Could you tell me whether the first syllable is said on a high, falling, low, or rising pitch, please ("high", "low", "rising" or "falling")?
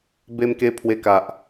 high